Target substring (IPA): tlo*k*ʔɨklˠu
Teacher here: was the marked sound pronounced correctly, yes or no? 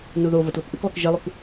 yes